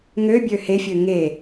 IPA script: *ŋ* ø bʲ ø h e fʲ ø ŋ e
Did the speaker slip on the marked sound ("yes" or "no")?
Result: no